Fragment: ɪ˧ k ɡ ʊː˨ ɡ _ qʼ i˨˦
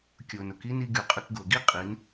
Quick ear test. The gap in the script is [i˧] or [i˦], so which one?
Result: i˦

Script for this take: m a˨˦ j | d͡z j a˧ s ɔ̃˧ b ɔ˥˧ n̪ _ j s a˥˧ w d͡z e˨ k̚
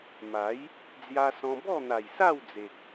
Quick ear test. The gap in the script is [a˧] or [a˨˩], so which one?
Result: a˨˩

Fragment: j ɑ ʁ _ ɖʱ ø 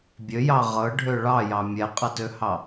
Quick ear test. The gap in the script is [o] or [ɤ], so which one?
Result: ɤ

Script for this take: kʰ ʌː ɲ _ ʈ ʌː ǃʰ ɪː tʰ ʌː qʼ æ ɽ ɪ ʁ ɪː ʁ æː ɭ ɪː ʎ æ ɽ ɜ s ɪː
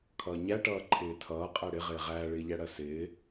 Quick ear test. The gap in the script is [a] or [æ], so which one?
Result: æ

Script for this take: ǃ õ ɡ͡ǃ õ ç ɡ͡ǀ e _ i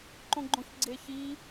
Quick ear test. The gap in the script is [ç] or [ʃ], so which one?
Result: ç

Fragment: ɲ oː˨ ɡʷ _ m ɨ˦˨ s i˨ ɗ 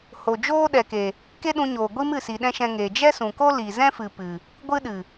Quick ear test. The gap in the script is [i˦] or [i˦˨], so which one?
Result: i˦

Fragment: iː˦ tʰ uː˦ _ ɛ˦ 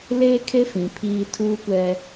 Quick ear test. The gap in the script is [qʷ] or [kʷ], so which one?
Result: kʷ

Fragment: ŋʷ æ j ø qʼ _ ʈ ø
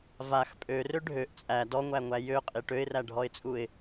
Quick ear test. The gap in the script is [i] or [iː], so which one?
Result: i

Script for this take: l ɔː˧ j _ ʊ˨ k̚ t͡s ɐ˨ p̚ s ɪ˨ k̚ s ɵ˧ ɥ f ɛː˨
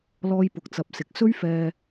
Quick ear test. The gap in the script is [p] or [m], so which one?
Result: p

